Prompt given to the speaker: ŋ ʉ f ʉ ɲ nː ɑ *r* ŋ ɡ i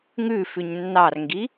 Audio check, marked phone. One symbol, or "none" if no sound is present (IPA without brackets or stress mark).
r